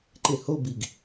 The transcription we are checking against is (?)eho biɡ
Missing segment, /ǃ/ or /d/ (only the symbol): ǃ